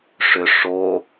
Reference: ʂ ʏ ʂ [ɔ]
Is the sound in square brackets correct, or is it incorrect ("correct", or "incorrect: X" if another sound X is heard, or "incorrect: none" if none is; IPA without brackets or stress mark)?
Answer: incorrect: o